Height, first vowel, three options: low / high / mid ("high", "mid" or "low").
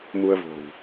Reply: high